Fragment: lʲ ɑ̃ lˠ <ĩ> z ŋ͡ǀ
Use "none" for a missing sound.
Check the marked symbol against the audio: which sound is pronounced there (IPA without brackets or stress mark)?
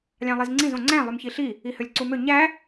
i